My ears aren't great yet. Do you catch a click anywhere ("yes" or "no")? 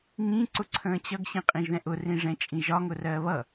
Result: yes